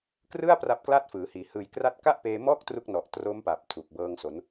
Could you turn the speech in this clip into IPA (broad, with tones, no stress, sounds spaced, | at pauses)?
k r ɯ˥˩ a̯ p r a˦˥ p̚ k l a˥˩ t̚ f ɯː˩˦ h iː˩˦ h ɯː˨˩ j k r a˦˥ t̚ k a˥˩ ʔ p eː˧ m ɔː˥˩ k̚ t r u˦˥ k̚ n ɔ˨˩ ʔ t r o˦˥ m p a˨˩ p̚ tʰ u˨˩ k̚ b ɤː˧ ŋ s o˩˦ n